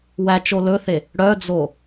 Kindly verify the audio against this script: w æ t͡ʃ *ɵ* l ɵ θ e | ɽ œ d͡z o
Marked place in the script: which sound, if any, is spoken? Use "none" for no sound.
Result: o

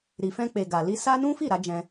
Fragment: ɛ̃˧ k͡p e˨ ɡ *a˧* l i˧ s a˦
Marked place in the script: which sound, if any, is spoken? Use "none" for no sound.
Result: a˨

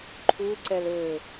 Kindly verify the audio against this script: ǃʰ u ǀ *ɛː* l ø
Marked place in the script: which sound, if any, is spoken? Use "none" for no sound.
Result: ɛ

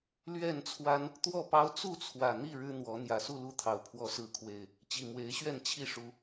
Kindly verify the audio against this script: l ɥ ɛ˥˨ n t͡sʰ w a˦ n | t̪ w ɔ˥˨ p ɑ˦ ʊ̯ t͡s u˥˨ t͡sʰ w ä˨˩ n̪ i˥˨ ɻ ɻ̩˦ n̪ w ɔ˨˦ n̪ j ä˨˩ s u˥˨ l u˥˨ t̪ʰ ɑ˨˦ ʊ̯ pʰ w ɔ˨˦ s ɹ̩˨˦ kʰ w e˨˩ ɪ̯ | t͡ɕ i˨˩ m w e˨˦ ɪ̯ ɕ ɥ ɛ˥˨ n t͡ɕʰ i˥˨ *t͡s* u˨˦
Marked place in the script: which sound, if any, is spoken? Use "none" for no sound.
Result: ʂ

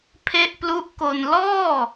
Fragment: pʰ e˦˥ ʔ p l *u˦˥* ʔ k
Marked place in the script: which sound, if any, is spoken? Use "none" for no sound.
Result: u˦˥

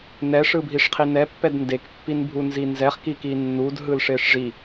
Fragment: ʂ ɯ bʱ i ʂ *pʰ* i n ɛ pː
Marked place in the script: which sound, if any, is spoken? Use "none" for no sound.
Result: qʰ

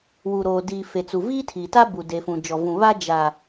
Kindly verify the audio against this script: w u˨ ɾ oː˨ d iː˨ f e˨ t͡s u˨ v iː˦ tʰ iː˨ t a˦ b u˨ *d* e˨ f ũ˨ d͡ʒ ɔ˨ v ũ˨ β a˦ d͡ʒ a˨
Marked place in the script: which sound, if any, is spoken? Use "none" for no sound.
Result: d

